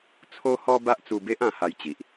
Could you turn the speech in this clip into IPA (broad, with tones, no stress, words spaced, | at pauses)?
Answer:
t͡sʰo˦hɔ˦ ba˦ʔt͡su˧be˦ʔ ã˧ha˧jt͡ɕi˨ʔ